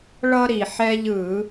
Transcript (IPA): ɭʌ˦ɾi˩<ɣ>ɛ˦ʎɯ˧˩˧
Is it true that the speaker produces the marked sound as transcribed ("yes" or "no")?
no